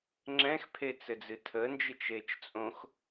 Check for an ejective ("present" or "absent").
present